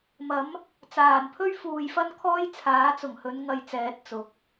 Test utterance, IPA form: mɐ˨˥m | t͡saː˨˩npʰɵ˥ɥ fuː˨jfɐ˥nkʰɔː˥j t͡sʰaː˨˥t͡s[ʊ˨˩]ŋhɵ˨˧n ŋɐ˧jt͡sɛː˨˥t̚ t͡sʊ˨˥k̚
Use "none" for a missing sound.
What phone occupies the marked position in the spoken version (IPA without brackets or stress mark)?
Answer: ʊ˨˩